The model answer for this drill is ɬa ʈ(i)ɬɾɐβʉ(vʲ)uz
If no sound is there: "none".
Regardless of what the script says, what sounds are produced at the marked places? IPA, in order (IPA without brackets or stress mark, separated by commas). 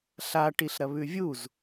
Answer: i, vʲ